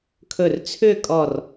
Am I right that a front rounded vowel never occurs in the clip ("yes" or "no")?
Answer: no